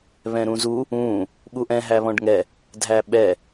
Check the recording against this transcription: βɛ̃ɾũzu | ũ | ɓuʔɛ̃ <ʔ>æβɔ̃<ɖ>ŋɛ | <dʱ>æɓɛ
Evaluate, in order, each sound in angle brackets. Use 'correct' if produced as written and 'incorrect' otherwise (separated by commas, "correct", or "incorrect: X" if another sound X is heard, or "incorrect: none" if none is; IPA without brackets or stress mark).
incorrect: ɦ, correct, correct